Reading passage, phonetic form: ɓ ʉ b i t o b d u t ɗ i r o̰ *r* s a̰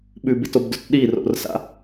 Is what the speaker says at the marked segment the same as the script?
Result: yes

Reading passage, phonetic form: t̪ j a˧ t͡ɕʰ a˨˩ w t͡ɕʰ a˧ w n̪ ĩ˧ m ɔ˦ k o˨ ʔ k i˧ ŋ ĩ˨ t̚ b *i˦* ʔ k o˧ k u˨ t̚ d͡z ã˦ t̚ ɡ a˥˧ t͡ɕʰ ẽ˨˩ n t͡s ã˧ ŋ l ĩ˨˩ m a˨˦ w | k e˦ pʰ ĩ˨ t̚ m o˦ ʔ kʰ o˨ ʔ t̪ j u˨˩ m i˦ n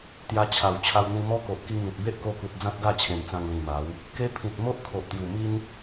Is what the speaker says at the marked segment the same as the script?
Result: no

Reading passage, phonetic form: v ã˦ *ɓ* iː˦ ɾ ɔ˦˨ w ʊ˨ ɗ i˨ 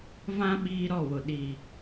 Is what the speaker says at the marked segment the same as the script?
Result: yes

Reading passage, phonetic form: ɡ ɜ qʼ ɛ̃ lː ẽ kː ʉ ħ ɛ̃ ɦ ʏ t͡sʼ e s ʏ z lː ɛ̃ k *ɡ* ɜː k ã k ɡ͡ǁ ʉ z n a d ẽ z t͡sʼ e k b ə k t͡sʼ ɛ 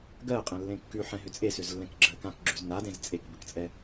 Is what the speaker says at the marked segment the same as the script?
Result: no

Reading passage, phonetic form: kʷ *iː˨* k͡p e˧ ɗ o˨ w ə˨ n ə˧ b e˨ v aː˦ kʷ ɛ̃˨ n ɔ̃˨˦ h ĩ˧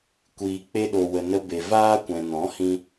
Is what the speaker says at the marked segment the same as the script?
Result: yes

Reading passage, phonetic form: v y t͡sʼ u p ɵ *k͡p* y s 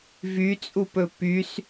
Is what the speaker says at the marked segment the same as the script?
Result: no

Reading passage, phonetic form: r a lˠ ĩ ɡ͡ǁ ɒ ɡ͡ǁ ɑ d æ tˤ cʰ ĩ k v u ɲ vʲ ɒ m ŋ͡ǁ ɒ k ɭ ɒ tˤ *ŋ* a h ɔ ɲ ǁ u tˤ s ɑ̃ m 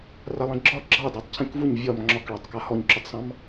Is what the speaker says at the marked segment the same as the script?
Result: no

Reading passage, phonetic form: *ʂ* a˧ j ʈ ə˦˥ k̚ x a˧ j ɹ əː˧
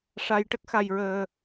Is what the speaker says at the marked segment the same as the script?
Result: yes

